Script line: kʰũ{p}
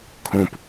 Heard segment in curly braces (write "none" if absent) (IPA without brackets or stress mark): p